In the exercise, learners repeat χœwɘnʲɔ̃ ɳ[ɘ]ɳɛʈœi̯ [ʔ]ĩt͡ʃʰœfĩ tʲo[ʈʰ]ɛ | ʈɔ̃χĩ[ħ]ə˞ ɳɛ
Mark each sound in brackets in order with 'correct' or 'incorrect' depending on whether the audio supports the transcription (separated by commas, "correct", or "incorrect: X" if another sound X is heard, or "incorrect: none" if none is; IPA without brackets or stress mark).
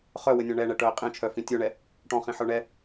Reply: incorrect: ɛ, incorrect: qʼ, incorrect: ɳ, correct